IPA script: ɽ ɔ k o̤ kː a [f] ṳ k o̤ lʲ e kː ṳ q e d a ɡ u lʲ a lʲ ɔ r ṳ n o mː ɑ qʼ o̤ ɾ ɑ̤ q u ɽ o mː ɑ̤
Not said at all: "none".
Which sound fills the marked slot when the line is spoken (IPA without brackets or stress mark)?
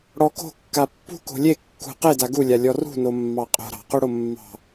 pː